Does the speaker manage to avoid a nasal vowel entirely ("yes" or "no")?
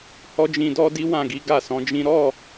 no